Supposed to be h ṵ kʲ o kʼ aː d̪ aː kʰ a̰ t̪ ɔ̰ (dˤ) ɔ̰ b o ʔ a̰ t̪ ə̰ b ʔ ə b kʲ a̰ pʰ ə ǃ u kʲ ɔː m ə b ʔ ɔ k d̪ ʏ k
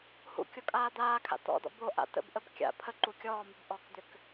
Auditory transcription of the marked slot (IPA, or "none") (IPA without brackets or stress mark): d̪